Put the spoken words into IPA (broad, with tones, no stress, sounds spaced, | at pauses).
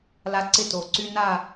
l a˦ ǀ ɪ˦ t o˨ ǀ y˦ n a˦˨